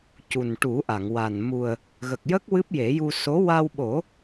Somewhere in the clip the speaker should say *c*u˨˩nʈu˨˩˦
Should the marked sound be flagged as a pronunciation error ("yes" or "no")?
no